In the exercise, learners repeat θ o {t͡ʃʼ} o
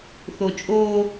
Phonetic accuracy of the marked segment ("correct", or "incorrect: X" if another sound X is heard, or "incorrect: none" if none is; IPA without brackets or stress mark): correct